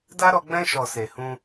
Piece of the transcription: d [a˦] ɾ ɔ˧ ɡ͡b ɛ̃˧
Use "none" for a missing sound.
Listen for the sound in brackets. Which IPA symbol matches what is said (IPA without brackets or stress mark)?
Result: a˦